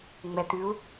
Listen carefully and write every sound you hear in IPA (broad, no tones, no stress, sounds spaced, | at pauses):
ŋ͡m ɛ t̪ ʉ u̯